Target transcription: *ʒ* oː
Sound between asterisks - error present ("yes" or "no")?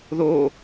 yes